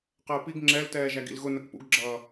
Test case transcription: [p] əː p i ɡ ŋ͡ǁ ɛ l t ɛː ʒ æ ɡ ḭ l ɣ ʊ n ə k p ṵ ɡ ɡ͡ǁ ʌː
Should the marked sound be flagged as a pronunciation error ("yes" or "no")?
yes